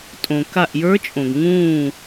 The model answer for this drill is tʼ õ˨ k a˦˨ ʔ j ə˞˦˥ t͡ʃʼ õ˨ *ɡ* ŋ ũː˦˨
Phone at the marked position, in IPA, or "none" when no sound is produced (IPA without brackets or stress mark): ɡ